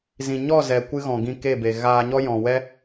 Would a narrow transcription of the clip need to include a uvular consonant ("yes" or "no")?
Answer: no